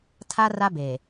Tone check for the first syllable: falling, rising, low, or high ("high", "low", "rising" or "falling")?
high